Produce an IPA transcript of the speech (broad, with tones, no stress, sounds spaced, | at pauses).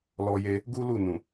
l ɔ˧ j e˧ | ɡ u˦ l u˦˨ n ũ˨